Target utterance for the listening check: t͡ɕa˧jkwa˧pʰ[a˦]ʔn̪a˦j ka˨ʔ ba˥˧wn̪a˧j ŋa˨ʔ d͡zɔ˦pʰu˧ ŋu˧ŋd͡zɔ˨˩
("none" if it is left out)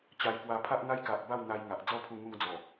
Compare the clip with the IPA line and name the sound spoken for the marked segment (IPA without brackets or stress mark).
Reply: a˦